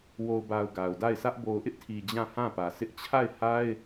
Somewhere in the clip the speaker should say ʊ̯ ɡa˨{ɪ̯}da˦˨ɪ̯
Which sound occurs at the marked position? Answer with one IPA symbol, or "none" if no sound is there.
ʊ̯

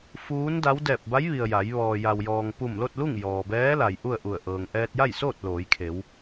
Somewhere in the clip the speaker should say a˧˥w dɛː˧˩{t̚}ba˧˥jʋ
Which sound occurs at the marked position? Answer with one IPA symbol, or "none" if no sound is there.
p̚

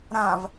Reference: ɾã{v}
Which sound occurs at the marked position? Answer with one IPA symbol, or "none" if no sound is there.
v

